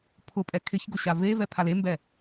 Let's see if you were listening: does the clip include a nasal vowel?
no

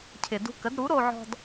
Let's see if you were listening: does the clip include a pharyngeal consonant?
yes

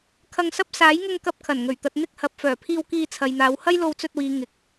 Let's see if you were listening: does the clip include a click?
no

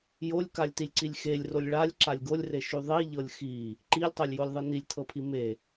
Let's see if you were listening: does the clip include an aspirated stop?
yes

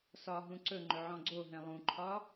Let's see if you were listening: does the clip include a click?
yes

